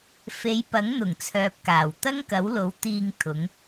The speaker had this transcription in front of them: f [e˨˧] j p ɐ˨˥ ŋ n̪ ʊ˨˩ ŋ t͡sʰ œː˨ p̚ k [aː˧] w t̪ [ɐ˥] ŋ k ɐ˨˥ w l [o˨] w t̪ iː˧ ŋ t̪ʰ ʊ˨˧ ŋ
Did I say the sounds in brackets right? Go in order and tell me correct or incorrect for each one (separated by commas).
correct, incorrect, correct, incorrect